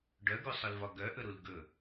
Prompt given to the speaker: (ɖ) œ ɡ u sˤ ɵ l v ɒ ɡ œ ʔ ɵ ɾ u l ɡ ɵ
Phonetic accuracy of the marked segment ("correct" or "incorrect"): correct